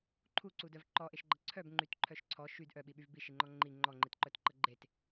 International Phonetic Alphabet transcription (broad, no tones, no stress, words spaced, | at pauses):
ǃʰuǀudœv ǃɔʔeʃɡ͡ǃə ǀʰœbŋ͡ǃytǃʰœʃ ǀʰɔ ʃyd ʔœɓiɓyv biʃiŋ͡ǃɔ ŋ͡ǃi ŋ͡ǃɔŋ͡ǃitǃœtǃə ɡ͡ǃet